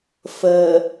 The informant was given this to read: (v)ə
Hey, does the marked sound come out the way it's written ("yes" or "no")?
no